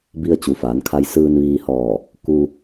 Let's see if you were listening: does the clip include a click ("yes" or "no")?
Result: no